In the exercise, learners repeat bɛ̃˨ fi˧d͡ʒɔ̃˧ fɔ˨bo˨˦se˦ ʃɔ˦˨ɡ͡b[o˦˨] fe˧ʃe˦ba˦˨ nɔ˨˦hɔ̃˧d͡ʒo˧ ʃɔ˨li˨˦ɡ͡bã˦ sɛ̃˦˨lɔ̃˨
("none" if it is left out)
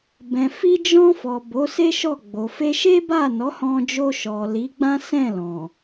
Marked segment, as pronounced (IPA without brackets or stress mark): o˨